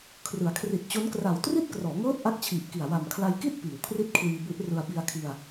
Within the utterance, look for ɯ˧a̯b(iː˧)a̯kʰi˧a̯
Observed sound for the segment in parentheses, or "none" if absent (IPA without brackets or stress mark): i˧